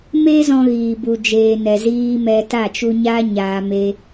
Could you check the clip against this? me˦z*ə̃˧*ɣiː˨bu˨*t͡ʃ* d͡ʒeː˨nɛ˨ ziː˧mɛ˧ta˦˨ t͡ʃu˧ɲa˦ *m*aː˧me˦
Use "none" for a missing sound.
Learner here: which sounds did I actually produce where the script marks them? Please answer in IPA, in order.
ɔ̃˧, none, ɲ

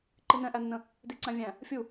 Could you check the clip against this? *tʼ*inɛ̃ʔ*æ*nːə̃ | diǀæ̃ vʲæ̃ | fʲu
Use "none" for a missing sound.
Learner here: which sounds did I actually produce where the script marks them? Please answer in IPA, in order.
ǃ, æ

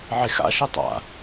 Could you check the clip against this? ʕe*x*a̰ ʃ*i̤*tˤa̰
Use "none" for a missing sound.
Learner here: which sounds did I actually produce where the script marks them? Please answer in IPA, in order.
x, i

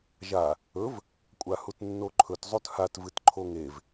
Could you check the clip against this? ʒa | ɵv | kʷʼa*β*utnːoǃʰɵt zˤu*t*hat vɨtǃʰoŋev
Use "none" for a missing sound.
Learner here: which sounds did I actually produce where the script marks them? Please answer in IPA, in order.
h, t

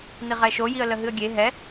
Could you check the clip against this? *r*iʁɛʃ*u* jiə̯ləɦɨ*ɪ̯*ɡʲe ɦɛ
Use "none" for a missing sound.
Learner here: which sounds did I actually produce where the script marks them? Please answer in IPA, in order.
n̪, o, ə̯

